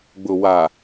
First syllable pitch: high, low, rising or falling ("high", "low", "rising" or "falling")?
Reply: low